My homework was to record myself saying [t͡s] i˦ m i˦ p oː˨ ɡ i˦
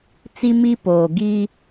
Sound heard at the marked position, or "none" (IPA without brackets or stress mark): t͡s